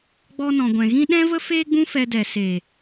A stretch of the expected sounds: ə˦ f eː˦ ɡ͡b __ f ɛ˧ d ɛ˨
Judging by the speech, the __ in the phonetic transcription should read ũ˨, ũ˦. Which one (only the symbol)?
ũ˦